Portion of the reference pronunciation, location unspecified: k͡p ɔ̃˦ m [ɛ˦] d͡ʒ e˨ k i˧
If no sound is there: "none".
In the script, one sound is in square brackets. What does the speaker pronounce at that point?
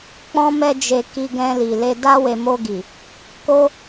ɛ˧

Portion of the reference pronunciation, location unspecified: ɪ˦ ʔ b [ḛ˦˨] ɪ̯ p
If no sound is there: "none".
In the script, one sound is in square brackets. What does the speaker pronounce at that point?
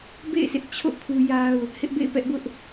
ḛ˦˨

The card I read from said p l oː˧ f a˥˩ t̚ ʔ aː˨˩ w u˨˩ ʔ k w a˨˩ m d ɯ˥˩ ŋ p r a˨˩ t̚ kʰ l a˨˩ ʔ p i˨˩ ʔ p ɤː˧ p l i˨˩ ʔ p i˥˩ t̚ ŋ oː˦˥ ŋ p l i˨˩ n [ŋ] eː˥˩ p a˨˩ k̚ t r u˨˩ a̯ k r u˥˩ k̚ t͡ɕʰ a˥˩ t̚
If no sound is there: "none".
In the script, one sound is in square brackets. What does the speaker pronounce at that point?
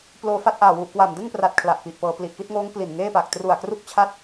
ŋ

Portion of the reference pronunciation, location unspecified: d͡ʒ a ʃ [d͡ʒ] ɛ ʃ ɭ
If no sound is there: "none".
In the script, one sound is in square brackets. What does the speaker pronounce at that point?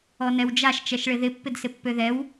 t͡ʃ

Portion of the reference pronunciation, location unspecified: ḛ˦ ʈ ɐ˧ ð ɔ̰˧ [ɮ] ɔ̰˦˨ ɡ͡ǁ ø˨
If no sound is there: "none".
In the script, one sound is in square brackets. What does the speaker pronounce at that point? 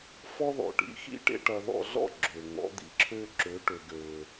ɮ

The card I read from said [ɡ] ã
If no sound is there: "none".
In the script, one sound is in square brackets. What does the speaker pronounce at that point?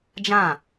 d͡ʒ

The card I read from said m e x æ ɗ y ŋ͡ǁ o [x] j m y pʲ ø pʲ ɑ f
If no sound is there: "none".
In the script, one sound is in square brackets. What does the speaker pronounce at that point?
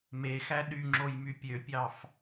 none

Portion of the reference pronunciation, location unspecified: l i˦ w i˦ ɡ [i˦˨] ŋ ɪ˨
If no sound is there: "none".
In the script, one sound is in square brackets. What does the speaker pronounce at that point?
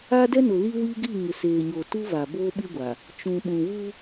i˦˨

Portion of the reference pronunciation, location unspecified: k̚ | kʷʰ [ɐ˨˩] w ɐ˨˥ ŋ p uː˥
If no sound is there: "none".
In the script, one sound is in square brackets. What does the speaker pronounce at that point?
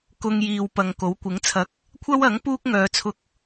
ɐ˥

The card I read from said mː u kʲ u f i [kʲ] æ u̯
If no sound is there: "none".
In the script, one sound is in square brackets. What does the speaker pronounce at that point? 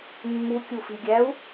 ɡʲ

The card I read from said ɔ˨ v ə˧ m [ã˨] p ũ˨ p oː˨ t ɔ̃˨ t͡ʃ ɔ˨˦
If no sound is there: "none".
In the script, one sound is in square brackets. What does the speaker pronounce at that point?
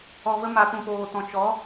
a˨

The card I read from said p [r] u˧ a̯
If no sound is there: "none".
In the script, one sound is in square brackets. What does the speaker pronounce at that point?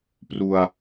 r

